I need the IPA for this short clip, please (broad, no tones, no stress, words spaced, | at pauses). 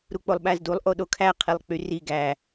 ɾuk͡polˠɓæzdulˠ ʔoɗokʰæ qʰilˠk͡pyri ɡæ